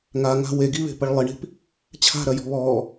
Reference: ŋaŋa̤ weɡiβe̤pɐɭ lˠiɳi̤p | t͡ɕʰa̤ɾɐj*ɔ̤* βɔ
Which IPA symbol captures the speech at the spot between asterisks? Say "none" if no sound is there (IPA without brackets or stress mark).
ɔ̤